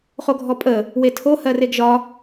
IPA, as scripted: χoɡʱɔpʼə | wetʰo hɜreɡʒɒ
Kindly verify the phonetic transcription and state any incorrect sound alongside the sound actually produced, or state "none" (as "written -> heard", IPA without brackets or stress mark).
none